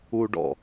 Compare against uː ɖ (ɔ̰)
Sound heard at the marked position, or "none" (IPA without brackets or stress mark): ɔ̰